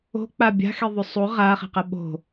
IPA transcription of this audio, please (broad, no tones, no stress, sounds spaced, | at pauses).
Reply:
o̤ k͡p a bʲ a̤ x e ðˤ ʉ sˤ u ʁ a χ e̤ q ɐ ɓ o̤